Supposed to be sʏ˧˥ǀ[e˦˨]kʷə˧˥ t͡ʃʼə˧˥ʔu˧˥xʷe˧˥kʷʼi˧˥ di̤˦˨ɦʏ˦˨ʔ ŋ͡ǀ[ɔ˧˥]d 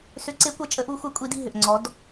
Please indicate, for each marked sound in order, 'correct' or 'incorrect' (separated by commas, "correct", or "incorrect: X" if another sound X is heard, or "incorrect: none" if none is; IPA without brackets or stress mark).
incorrect: e˧˥, correct